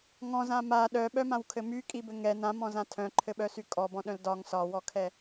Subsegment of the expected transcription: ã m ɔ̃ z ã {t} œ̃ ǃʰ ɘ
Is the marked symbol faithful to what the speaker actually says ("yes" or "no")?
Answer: no